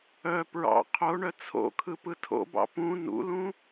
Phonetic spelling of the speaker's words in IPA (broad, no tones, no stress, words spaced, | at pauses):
œ pɹɑ̰ qʰoɳœ t͡sʰo̰kʰɯ pɯtʰo̰bɑ̰ pũ nṵlũ